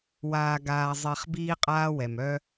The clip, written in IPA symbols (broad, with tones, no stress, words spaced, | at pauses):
waː˨ɡaː˨ zˤe˨χ biː˦qʼaː˦wɛ˨m œ˦